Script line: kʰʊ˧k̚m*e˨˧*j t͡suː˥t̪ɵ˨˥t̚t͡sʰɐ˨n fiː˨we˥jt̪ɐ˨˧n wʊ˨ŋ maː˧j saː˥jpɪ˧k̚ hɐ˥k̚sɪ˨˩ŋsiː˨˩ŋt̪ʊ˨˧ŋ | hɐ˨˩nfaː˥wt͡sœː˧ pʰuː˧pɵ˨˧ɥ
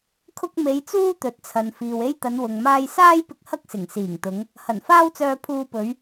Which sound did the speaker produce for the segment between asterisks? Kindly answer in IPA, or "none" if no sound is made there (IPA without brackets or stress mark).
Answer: e˨˧